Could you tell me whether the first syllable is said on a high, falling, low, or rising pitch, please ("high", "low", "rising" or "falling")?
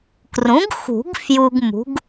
rising